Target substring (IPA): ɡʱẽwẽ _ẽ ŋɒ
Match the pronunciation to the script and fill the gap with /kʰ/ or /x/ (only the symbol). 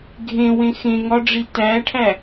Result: x